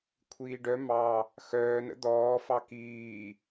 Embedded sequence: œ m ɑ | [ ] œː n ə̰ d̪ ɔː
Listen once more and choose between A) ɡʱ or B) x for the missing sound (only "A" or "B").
B